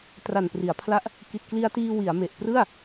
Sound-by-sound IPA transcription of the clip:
t r a˨˩ n p r i˩˦ a̯ pʰ l a˦˥ ʔ | k i˨˩ t̚ k l i˧ a̯ t iː˧ w i˩˦ a̯ m e˨˩ ʔ p r ɯ˥˩ a̯

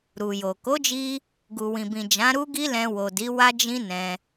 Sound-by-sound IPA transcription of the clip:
ɾ u˨ j o˨ k o˨˦ d͡ʒ i˧ | ɡ u˨ w ĩ˨ b ĩ˨ d͡ʒ ã˨˦ ɾ u˦ ɡ i˦ l ɛ̃˧ w o˨ d i˨˦ w a˦ d͡ʒ ĩ˦ n ɛ̃˧

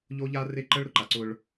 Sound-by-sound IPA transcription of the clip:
ʎ o˦ ʎ a˦ r e˦ ǃ ə˦ ɭ ɾ ʊ˦ ǃ a˨ ǀ ʊ˦ ɭ

